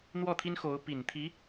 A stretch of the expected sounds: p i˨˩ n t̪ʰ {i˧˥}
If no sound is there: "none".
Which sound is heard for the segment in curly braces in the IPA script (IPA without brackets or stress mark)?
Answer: i˧˥